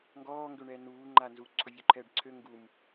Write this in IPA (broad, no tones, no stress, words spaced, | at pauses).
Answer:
ŋɡɔːŋɡøɳɛː nuː ŋ͡ǃanzu ǀʰovʲuǃʰɛːɖǀʰø ŋɡum